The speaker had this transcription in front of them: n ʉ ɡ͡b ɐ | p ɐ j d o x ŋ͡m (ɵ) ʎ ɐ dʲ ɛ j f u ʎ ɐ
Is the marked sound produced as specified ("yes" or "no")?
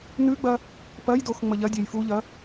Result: no